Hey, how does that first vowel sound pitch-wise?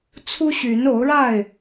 high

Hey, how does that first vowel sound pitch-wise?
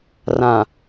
low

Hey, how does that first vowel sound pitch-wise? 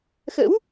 rising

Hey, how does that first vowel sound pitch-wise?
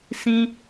high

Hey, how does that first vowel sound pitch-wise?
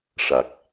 low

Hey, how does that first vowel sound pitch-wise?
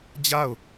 falling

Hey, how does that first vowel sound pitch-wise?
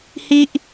high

